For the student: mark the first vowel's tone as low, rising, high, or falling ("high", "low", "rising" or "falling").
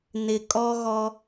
low